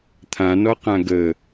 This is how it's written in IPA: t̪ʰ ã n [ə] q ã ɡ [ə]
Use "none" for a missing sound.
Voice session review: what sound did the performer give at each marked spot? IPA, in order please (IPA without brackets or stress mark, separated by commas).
ɔ, ə